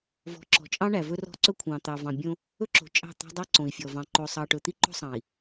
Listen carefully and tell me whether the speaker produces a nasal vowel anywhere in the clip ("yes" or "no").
yes